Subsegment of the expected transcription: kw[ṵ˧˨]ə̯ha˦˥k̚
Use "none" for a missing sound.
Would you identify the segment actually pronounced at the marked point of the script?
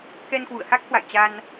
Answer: ṵ˧˨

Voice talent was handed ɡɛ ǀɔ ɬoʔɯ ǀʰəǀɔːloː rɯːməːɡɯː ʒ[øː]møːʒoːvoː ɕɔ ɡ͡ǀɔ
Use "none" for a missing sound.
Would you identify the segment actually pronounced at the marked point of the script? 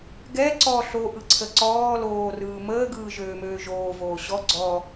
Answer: øː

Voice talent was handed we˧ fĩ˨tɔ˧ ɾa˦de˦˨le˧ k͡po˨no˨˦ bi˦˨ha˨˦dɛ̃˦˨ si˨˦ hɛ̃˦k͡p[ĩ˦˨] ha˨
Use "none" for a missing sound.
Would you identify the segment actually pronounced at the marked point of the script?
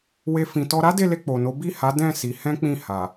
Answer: ĩ˦˨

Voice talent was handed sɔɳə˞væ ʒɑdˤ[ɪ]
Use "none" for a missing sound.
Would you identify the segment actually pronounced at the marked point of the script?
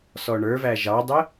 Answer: ɪ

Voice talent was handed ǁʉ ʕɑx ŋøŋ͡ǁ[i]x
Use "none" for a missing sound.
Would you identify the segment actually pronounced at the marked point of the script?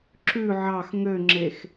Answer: e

